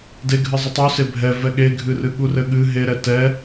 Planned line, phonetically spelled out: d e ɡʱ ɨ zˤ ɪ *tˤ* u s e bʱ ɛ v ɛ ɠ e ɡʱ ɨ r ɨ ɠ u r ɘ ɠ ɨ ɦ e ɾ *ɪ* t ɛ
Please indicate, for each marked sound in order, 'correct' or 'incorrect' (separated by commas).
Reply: correct, incorrect